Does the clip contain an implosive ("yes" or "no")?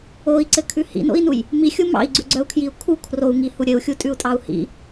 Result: no